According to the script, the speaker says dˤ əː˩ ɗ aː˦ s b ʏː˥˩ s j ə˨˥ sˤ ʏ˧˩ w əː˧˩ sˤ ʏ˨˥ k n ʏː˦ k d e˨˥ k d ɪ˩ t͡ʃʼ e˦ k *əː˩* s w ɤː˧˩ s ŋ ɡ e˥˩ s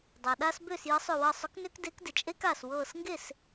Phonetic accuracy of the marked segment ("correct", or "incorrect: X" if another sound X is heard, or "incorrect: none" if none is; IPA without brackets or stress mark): incorrect: aː˩